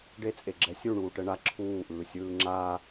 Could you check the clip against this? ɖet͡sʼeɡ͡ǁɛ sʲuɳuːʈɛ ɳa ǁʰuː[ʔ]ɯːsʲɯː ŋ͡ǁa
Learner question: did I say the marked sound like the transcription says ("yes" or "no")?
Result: yes